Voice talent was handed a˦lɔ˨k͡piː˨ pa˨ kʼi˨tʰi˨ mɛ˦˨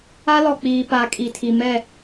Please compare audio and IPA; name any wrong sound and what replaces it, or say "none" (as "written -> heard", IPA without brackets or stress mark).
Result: none